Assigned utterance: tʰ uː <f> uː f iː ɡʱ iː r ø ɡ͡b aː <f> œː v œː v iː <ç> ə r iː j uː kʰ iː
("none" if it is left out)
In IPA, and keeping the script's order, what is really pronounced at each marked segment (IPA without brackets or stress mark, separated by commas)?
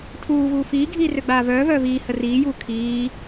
v, v, h